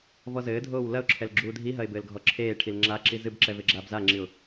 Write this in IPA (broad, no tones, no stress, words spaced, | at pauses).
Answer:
vɔzɘːdʱoːw lɐʊ̯ǁʰɛl ɡ͡ǁuːdʱiɦɐɪ̯ bɘːlɡʱɔǁʰeːʈʰil ŋ͡ǁaǁi zɨbǁɛ veɡ͡ǁaːbzaŋ͡ǁiʊ̯